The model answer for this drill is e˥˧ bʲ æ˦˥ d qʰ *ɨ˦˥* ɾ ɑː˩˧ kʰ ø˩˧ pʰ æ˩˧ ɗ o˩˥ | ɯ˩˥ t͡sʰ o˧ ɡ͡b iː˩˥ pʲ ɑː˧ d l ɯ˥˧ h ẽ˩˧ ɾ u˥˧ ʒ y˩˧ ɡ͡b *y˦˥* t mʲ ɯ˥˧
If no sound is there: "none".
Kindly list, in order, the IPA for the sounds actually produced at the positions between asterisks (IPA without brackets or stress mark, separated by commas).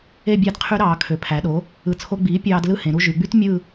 y˦˥, y˦˥